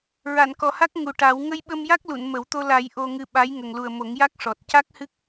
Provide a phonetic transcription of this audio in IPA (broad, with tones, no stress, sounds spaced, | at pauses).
ɹ a˨˩˨ n k ɔ˨˩ h a˦˥ k̚ ŋ u˨˩ ʈ a˨˩˦ w ŋ ə˧ j ɓ ə˧ m j a˦˥ k̚ l u˨˩˨ n m ə˨˩˦ w t̪ o˧ l a˨˩˦ j ʔ o˧ ŋ ɨ˧ ɓ a˧˥ j ŋ ə˨˩ ŋ l u˨˩ ə̯ m o˨˩˦ ŋ j a˦˥ k̚ ʂ ɔ˨˩ t̚ c a˦˥ k̚ h ɨ˦˥ k̚